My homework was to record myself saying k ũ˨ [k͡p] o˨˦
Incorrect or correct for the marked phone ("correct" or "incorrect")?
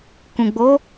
incorrect